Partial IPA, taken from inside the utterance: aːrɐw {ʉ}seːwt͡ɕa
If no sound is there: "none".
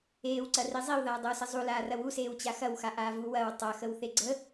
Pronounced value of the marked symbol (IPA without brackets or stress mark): u